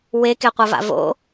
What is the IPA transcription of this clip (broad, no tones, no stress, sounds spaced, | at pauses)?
w e k e qʷ ɐ v a̰ v o̰